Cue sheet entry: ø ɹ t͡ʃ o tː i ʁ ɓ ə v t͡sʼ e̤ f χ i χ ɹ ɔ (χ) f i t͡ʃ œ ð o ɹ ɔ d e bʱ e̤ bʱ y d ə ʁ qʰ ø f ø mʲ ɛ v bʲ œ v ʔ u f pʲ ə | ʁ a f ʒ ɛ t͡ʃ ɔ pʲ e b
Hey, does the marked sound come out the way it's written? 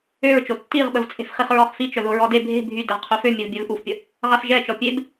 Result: yes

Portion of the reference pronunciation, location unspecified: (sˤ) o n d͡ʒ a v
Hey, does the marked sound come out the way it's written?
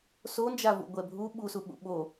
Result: no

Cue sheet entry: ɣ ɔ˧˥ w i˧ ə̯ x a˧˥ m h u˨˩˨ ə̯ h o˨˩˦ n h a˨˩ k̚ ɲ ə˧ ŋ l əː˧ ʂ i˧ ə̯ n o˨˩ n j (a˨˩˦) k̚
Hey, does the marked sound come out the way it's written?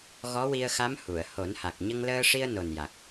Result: no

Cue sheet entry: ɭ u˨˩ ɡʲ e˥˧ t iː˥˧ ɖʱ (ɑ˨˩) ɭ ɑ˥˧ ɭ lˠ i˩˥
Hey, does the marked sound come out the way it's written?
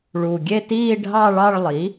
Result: no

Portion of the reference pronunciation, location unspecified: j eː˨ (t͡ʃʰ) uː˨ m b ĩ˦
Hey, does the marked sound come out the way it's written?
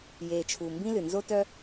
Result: yes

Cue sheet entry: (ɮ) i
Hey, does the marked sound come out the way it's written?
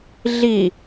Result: yes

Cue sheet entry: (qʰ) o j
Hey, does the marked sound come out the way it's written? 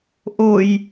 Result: no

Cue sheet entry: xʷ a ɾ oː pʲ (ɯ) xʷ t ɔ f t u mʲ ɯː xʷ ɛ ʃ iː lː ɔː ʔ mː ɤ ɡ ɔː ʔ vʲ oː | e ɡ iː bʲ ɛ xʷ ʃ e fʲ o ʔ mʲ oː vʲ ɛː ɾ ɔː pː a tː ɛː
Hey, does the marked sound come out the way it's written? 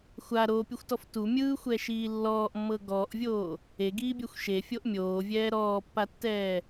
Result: yes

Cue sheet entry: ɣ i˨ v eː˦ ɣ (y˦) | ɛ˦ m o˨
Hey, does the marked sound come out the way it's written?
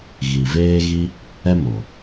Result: no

